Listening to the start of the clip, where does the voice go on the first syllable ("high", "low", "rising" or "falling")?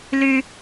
high